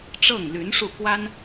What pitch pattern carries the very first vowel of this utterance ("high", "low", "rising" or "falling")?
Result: falling